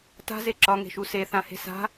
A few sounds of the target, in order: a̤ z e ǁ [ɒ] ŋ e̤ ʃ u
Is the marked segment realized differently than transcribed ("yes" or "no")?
no